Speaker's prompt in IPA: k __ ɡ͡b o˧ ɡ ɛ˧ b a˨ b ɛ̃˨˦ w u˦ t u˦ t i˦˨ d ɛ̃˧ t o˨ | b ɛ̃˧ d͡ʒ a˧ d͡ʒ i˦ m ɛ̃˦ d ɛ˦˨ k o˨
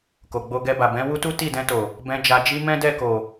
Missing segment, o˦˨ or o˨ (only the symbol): o˨